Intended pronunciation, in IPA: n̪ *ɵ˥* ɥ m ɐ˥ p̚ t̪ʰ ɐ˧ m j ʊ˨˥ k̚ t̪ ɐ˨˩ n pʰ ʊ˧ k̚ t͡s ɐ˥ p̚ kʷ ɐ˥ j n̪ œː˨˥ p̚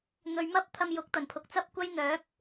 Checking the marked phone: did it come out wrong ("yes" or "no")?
no